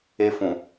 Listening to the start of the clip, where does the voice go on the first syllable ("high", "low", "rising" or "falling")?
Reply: high